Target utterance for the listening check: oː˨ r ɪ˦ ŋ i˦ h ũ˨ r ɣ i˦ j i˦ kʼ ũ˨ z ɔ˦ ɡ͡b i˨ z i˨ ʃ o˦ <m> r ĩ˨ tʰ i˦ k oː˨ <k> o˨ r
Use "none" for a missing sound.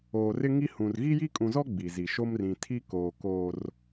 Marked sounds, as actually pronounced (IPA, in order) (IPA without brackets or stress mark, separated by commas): m, k